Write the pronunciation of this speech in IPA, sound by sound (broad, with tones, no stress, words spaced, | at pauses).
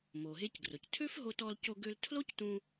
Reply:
mo˩ɦe˧cɡrʊ˩ctʰø˥f ɦo˧t ɔ˧l co˧ɡø˧ltʰlo˥ctũ˧